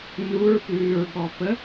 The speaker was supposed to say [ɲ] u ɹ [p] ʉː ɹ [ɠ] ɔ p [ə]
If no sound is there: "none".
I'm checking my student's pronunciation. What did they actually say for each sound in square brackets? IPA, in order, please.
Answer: n, p, ɠ, ə

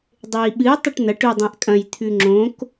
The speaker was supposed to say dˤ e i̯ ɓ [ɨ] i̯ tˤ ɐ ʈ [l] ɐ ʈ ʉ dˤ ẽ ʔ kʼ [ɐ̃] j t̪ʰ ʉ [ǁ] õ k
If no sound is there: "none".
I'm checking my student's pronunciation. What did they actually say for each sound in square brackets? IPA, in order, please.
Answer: ɨ, n, ɐ̃, ŋ͡ǁ

